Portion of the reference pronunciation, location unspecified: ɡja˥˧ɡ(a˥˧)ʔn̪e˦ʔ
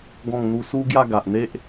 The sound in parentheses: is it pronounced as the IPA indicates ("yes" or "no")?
no